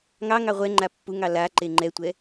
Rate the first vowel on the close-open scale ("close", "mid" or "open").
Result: open